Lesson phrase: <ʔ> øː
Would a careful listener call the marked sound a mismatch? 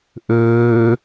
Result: no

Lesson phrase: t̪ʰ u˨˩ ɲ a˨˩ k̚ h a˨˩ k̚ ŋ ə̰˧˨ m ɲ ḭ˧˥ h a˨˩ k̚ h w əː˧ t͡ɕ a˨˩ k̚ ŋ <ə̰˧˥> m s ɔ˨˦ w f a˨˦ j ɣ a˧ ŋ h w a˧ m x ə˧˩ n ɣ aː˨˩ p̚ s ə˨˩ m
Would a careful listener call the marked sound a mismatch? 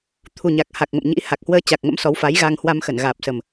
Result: no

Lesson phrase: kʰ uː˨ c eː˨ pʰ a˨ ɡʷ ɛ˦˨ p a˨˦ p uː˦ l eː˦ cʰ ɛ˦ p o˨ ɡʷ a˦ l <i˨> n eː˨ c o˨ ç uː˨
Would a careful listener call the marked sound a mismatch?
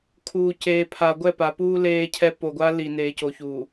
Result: no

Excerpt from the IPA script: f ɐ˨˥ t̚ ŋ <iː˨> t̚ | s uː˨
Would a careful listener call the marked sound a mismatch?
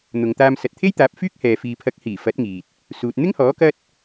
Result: no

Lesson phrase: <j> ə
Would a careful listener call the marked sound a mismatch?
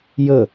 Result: no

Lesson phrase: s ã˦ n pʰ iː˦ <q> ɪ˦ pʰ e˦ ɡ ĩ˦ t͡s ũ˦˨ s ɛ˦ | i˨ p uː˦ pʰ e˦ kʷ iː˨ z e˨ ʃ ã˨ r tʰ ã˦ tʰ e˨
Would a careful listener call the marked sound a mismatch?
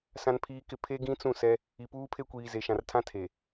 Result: yes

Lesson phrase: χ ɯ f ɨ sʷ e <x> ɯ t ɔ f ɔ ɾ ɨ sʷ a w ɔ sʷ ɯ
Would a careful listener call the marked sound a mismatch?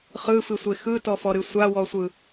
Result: no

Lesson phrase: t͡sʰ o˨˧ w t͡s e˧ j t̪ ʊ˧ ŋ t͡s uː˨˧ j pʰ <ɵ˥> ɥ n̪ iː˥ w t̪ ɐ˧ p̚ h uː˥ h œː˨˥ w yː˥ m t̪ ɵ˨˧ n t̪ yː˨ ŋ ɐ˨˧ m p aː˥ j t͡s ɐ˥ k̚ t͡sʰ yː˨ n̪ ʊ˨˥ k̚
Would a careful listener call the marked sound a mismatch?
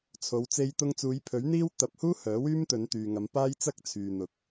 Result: yes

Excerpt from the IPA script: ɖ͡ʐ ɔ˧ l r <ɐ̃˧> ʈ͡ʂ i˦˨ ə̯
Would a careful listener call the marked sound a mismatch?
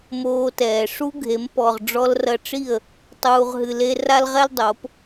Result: yes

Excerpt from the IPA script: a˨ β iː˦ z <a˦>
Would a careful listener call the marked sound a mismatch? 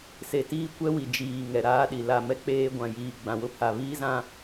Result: yes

